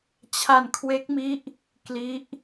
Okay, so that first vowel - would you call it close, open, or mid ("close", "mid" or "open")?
open